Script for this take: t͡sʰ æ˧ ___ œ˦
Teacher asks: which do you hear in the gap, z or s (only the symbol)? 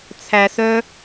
s